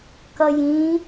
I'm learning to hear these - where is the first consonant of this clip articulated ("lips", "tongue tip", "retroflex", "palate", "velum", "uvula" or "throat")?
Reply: velum